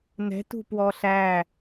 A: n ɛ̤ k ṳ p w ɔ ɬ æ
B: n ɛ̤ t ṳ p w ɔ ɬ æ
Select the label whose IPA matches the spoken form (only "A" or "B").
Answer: B